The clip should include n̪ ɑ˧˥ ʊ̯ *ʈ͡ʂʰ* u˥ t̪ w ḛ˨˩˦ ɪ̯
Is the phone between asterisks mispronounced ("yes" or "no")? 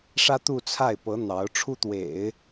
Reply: no